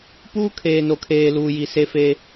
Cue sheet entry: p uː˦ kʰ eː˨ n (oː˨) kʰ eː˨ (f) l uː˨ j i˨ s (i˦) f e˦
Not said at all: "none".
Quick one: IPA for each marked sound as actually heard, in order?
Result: o˨, none, e˦

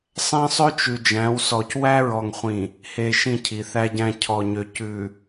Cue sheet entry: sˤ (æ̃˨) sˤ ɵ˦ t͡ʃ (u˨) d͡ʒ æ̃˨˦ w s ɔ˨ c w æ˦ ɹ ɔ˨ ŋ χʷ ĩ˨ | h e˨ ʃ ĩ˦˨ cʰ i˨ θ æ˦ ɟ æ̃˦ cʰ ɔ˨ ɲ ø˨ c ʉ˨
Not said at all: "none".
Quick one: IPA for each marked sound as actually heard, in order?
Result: æ̃˦, ʉ˨

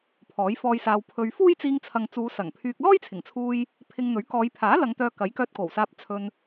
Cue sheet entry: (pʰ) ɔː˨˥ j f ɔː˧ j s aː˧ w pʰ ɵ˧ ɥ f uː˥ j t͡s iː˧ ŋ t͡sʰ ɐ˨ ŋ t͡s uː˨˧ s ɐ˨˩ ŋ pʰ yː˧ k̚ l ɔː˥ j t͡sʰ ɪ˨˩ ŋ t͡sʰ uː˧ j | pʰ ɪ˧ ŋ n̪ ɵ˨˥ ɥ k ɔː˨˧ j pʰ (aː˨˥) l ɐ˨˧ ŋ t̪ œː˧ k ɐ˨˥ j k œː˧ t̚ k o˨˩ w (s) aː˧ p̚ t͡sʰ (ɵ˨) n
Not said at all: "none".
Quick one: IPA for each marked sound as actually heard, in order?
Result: pʰ, aː˨˥, s, ɵ˧

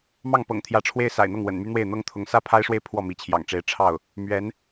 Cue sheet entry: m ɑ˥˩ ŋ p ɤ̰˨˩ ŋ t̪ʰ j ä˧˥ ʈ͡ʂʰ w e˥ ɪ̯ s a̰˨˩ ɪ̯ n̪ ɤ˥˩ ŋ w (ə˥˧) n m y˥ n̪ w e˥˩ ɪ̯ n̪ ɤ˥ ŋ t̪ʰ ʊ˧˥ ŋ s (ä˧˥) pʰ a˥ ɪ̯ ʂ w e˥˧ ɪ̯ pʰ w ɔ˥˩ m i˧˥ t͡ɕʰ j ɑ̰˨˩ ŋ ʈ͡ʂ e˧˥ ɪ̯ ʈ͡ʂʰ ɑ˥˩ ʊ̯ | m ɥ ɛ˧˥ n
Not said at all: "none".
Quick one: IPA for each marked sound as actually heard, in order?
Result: ə̰˨˩, ä˥

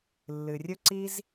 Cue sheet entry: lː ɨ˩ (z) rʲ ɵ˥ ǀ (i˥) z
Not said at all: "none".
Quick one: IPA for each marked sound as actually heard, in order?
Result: none, i˥

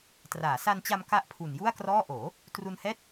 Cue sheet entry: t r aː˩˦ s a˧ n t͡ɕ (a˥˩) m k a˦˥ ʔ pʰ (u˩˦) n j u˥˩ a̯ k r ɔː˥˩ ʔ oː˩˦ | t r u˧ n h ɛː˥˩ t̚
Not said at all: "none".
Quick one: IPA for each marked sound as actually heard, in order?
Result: a˧, u˨˩

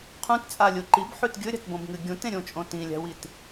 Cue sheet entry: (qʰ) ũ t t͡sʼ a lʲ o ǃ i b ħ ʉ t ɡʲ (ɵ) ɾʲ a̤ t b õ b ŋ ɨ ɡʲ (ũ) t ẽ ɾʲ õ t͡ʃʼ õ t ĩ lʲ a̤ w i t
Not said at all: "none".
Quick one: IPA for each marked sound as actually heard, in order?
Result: qʰ, ɵ, ũ

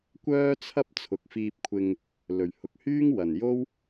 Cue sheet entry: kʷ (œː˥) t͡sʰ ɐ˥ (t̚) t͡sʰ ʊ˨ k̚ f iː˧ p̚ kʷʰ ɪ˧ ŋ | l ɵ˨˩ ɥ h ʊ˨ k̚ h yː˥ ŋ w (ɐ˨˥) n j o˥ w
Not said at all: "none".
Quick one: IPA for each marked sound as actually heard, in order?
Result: œː˥, p̚, ɐ˨˩

